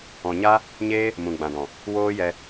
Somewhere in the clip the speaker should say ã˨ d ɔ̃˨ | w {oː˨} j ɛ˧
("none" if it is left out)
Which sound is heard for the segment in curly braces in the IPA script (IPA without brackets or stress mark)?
oː˦